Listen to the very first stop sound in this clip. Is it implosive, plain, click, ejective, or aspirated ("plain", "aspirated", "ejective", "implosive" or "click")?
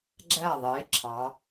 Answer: click